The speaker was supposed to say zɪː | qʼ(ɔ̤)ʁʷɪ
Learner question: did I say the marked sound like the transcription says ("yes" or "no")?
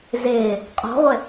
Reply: yes